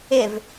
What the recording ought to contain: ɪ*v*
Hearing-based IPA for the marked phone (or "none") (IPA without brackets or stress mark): v